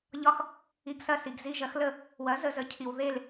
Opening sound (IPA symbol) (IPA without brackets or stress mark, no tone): ʎ